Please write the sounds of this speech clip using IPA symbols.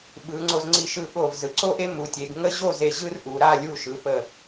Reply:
ɓɯ˩˧ŋ͡ǀo˧z ŋ͡ǀi˧˩ʃɯ˧˩ɠo˧˩vzɯ˩˧ ǀo˥ʔe˥ mu˩˧tʲe˩˧ɡ ŋə˥ ʑo˥˧ze˧˩ ʑɯ˥rʔu˩˧ɾa˥˧ lʲu˧˩ʃɯ˩˧ pə˧˩

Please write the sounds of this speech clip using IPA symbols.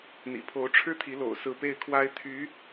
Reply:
n̪ḭ˨˩pʰo˧˥ʊ̯ʈ͡ʂʰɻ̩˥t̪ʰi˧˥ lo̰˨˩ʊ̯sɹ̩˧˥ pe˥˩ɪ̯kʰwa˥ɪ̯ t̪ʰy˧˥

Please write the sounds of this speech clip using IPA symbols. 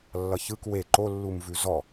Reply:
lːʌçɯk we ǃolːumvʉ zɔ

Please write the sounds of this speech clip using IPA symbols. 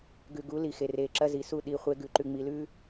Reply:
ɡʉ˨ɡu˨˦li˨ xe˨re˨ǁɐ˦ zi˨su˦˨ ɗi˨ χʷe˦ɡʉ˨ ǃʉ˨ŋ͡mi˨lʉ˦

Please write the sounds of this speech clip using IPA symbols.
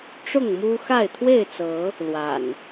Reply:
ʈ͡ʂʊ˥˨ŋmu˦xa˥˨ɪ̯ t̪ʰwe˥˨ɪ̯t͡sɤ˨˦ | lwa̰˨˩n

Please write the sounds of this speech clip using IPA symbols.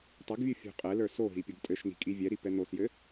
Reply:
tˤɛɡvʲu fʲṳqʼɛlə˞ soɦi pʲoɡtʼɘʃni̤ kʼivʲɛɾi pɛn̪osjɘ

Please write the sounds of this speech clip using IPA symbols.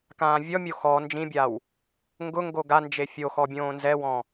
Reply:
kãːvʲɔmʲo xɔ nd͡ʒĩbʲaw | ŋɡʊŋɡo ɡand͡ʒe fʲoxɔ bʲõːnzɛwɔ̃

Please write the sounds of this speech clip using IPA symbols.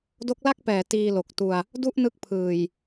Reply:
do˦˥k̚la˥˩k̚pɛː˩˦ tiː˧lo˨˩k̚tu˧a̯ | du˥˩ʔnɯ˦˥k̚pʰɯː˨˩j

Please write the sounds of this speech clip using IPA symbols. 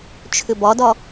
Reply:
t͡ʃʰʏbɒdɒ

